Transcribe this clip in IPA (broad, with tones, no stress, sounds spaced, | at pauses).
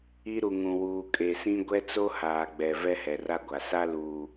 i˦ ɾ u˨ ŋ ũ˨ w uː˨ kʼ e˨ s ĩ˦ ɡʷ ɛ˦ t͡s o˦ h aː˨ ɡ͡b ɛ˨ v ɛ˦ h ɛ˨ r a˦ ɡʷ a˨ s a˦ l uː˨